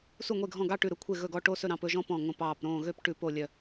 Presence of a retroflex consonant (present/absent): present